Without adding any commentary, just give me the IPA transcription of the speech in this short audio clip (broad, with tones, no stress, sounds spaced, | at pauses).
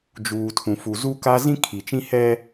d͡ʒ uː˨ tʰ ũ˨ f u˨ z u˦ k a˦ z ĩ˦ kʰ i˨ t͡ʃ ĩ˦ h ɛ˦